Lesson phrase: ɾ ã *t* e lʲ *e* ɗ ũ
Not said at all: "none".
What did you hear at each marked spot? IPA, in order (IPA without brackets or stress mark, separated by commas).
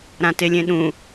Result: t, ẽ